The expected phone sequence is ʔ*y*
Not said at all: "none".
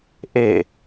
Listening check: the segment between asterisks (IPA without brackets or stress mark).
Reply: e